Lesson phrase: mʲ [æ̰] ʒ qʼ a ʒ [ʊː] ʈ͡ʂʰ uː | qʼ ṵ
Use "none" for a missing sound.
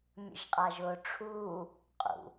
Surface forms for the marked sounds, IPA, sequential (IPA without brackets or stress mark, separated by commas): ə̰, ʊː